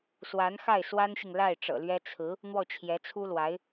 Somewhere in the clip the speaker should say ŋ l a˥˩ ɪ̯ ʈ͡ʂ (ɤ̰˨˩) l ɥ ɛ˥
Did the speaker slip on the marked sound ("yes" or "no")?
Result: no